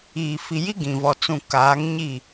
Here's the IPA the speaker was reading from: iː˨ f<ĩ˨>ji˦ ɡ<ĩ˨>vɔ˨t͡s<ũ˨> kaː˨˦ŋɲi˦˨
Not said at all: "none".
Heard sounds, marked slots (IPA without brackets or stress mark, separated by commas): i˨, ĩ˨, ũ˨